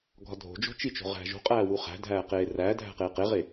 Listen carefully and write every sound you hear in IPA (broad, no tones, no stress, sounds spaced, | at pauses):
ɡʱ ɒ dʱ o̤ d͡ʒ o̤ t͡ʃ i t͡ʃ o̤ ʁ æ̤ ʒ o̤ qʼ æː w u χ æ̤ dʱ æː q eː r æː dʱ æ̤ q eː q e ʁ e